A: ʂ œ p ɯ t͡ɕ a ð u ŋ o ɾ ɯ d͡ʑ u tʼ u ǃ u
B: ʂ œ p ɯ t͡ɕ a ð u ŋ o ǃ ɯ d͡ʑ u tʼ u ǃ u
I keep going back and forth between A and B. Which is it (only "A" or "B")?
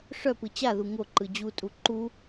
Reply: B